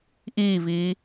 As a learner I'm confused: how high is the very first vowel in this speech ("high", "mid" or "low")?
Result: high